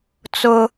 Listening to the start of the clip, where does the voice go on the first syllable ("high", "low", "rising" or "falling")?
high